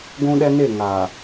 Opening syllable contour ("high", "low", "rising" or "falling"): high